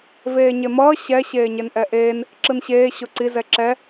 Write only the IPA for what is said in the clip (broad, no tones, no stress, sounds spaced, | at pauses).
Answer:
v eː ɲ e m ʌː ɕ ɛ ɕ eː ɲ e n ʔ ɛ ʔ eː n | ǁ ɯ n ɕ eː ɕ o ǀ i z ɛ ǁ ɛ